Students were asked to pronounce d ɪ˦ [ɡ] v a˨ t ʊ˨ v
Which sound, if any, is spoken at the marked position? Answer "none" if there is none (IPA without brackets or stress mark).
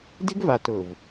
ɡ